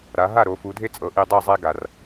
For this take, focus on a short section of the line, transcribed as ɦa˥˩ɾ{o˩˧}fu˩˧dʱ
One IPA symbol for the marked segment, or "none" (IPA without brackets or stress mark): o˩˧